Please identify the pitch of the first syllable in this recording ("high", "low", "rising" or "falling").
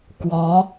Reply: rising